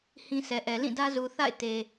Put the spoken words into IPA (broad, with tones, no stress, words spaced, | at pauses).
hĩ˦sʰɛ˨ʔɛ˨ lĩ˦˨ dä˦zu˨ θa̰˦˨ɪ̯te˨